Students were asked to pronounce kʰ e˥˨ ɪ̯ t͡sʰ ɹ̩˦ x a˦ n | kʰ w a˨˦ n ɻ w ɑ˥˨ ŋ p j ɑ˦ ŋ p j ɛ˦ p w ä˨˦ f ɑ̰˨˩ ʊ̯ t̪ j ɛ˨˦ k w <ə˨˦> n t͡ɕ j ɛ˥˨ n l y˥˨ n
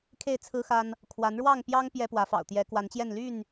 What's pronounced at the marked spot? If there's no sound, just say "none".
a˨˦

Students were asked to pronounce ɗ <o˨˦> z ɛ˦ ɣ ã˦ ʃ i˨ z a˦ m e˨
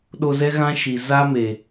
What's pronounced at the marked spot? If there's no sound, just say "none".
o˧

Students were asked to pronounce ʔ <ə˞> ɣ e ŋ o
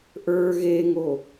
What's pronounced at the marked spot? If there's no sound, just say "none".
ə˞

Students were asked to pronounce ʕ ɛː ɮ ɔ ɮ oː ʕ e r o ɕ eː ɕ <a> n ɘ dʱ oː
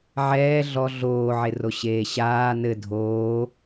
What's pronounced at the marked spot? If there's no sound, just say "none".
aː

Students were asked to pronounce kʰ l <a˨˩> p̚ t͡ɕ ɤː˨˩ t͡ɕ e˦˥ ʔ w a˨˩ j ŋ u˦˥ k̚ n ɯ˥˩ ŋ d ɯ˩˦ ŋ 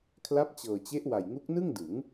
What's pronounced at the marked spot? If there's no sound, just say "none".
a˦˥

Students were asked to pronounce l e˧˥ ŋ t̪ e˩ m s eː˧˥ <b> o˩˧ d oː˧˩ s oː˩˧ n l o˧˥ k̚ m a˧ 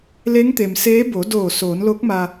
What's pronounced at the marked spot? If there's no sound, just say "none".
b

